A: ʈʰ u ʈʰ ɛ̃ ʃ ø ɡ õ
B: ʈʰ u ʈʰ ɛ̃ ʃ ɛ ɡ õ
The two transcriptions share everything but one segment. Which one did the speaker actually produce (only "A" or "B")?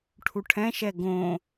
B